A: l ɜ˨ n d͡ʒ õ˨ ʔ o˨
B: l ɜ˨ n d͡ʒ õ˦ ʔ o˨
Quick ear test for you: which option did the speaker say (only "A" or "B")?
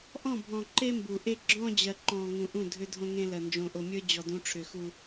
A